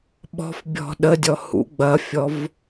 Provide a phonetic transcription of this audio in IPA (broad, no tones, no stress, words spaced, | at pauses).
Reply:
ɓɔ̤fbʲɔ̤ ɗədʲɔ hṵ ɡ͡bɐfʲɔv